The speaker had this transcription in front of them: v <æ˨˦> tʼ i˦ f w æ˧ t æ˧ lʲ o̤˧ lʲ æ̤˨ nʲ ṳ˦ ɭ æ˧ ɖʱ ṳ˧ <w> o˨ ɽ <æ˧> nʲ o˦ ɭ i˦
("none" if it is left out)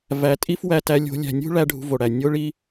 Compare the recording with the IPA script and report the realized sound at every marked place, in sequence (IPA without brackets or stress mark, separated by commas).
æ˨, v, æ˨